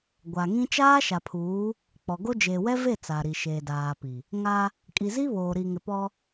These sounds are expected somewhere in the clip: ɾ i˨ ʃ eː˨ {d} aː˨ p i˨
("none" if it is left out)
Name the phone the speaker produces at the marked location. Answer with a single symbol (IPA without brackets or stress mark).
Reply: d